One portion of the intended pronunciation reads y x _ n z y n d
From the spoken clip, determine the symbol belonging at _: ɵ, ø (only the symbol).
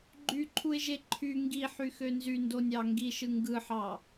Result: ø